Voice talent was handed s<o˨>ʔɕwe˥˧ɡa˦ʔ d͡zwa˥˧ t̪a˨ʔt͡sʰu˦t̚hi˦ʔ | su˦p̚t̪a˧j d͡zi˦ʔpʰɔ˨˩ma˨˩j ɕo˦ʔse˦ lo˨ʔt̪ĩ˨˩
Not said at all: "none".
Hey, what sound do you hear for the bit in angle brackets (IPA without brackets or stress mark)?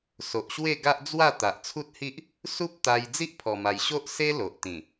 o˨